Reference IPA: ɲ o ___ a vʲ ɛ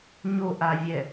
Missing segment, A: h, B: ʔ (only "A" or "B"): B